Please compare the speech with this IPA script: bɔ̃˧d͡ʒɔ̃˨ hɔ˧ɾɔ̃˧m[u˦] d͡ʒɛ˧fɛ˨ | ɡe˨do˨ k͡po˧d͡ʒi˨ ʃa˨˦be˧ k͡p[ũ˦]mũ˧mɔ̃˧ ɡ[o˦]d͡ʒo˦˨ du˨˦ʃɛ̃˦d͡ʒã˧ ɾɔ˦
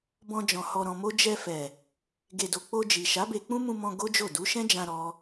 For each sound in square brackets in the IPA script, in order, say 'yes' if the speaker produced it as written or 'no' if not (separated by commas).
no, yes, yes